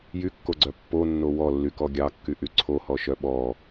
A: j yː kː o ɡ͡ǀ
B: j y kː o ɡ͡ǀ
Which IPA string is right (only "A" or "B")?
B